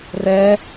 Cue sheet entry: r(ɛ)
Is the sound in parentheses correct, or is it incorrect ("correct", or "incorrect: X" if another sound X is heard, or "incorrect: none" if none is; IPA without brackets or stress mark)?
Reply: correct